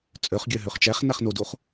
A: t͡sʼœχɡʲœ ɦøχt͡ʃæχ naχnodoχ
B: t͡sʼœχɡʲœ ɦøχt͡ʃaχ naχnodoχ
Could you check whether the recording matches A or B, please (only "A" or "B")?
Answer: A